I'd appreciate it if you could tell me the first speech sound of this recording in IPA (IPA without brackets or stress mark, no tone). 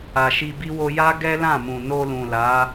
a